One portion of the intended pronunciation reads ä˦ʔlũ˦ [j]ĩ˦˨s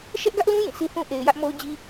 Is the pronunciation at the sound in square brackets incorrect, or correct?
correct